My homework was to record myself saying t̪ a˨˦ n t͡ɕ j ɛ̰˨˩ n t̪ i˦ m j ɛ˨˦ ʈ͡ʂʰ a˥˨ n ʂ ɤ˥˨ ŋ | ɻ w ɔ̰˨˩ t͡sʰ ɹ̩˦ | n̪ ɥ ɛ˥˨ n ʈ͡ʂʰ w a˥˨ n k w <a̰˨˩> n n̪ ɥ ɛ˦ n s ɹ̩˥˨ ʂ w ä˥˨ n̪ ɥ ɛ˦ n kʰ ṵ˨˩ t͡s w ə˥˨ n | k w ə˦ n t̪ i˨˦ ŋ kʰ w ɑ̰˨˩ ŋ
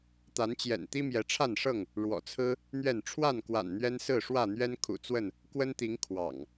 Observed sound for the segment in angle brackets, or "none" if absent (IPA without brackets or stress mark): a̰˨˩